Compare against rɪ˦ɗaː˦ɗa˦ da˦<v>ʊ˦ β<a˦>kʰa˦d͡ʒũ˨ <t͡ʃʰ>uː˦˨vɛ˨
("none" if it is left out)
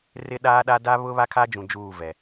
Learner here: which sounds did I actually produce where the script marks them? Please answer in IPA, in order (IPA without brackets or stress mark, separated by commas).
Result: β, a˦, d͡ʒ